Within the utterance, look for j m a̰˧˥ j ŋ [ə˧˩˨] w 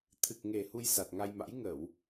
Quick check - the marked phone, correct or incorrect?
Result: correct